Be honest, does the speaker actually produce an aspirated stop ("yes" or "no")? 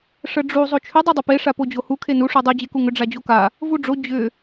yes